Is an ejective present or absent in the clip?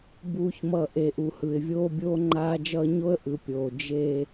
absent